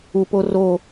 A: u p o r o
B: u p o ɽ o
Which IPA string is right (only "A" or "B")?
A